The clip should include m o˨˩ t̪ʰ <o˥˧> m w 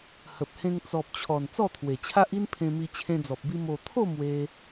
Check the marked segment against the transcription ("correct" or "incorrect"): correct